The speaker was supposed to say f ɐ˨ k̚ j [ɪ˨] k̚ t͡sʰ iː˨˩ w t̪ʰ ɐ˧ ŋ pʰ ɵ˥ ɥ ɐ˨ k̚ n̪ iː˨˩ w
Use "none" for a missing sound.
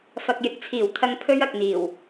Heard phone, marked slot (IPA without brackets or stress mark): ɪ˨˥